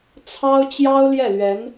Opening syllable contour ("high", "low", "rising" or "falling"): high